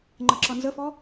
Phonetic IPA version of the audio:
ŋ͡ǃ ə ǁ ʌ n z ə f ɔ

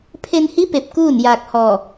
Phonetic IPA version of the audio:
pʰ e˧ n h i˧˥ p e˧ p̚ k uː˥˨ n j aː˧ k̚ h ɔː˧˩

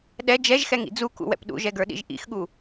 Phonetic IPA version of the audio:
ɗ ɛ d͡ʒ ɛ ʒ x ɛ ŋ ḭ d͡z u k ṵ w ɛ̰ p ɗ ṵ ʒ ɛ ɡ ə˞ ɗ ḭ ʒ ʔ ḭ x ɠ u

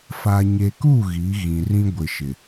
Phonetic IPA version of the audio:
f a˨ ɲ e˨ k u˦˨ ɣ i˨˦ ɣ ĩ˨ r ĩ˦ ɡʷ ɪ˨ ʃ ɪ˨

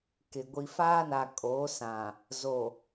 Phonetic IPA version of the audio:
k ɪ˨ ɡʷ i˨ f aː˦ n a˨ kʼ oː˨˦ s ã˨ | z o˨

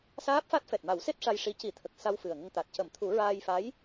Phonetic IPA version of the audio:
s aː˦˥ p̚ f a˦˥ t̚ f ɛ˨˩ t̚ m a˨˩˦ w s e˦˥ t̚ ʂ a˧ j ʂ i˧˥ c i˨˩˦ t̪ʰ ə˨˩ k̚ s a˧ w f ɨ˨˩ ə̯ ŋ ə˧ ŋ t̪ a˨˩ t̚ c ə˨˩˦ m t̪ʰ u˨˩˦ ɹ aː˧ j f a˧˥ j

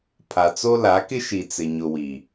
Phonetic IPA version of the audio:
pʰ a˨ t͡s o˦ l a˨˦ k ɪ˦ ʃ i˨ t͡s ɪ˨ ɲ ʊ˨ w i˨

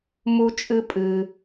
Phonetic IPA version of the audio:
m u˦ t͡ʃʼ ɨ˦ pʼ ɨ˧

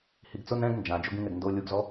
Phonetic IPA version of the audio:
h i ɡ t͡s ʊ n ɛ̃ ɡ n d͡ʒ ã d͡ʒ o ɡ ĩ ŋ ɛ ɡ n d o lʲ u ɡ z ɔ

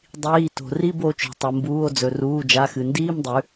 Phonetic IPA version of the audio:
dˤ iː˩˧˩ t o̤˩ r i˧˥˧ b o˩˧ t͡ʃ o̤˩ tˤ o˩ m b uː˩˧˩ o̯ d͡z ɵ˩ r uː˩˧˩ d͡ʒ a˩˧˩ x ɨ˩ n d iː˧˥˧ m dˤ ʉ˩˧

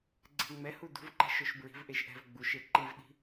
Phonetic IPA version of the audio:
ɡ͡ǀ ɛ̤ ŋ͡m ɛ h u d ṳ v ǃ ɛ̤ ʃ ʊ ʃ b ɹ i̤ v ʔ e ʃ ʔ ɛ̤ v ɡ͡b u ʃ e ǃ i v ɗ i̤

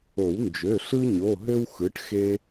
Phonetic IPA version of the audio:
o˨˩˦ w n d͡ʒ ø˩˧˩ ɬ ɯ˦ ɲ o˩˧˩ ɦ ø˦ w x ɯ˩˥ ʈ x e˦

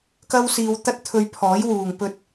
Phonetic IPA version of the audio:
k ɐ˥ w s iː˧ w t̪ ɐ˥ t̚ t̪ʰ ɵ˧ ɥ pʰ ɔː˨˥ j w uː˨ ŋ p ɵ˧ t̚

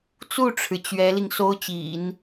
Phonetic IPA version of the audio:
t͡s u˥˩ ʈ͡ʂʰ ɻ̩˩ t͡ɕ ɥ ɛ˧˥ l i˧ ŋ s o˥ ʊ̯ t͡ɕ ḭ˨˩˦ n

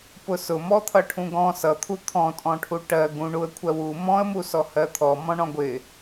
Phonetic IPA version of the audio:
p ʊ s ʊ m ɔ t̪ʰ ʌ ʈʰ ũ ɡ ɔ̃ s ʌ t̪ʰ u t̪ʰ ɔ̃ tʼ ɔ̃ ʈʰ u ʈ ɜ ɡ ũ ɳ u ə̯ kʷʰ ɜ w u m ɔ̃ ə̯ m u s ɔ h ɜ t̪ʰ ɔ m ɔ̃ ɳ ɔ̃ ɡʷ ɪ

